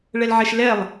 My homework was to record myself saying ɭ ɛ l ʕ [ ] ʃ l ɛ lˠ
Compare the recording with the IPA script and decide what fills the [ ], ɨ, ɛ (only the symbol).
ɛ